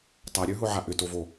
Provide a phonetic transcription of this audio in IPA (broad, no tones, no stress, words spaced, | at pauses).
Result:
tˤaɾʲə˞ɦʊʕa ʔʏtovo